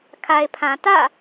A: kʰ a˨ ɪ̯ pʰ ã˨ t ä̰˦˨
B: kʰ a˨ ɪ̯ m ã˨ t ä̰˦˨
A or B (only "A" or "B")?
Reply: A